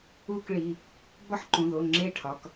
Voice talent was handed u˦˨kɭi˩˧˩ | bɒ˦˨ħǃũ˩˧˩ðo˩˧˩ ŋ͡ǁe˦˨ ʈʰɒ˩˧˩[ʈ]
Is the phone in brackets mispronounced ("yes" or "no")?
yes